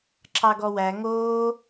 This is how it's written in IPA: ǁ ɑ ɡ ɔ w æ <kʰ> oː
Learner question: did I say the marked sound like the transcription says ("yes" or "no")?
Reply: no